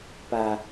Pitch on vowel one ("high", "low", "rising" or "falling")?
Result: low